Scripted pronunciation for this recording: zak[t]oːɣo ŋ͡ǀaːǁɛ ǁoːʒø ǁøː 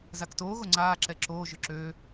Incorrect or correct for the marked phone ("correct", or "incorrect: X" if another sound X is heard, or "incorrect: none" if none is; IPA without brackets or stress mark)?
correct